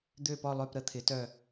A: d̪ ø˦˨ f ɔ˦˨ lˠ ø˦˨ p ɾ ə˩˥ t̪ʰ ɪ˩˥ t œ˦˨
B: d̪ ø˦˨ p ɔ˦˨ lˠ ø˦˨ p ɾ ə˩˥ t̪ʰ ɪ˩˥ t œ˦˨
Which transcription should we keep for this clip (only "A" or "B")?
B